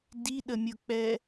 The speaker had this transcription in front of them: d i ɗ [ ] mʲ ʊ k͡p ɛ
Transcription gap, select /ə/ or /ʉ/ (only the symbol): ə